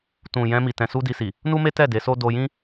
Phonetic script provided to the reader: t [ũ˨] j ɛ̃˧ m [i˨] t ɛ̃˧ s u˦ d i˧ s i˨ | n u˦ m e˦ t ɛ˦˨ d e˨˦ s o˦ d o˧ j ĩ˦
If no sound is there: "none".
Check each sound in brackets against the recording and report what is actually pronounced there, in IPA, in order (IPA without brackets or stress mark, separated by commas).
ũ˨, i˨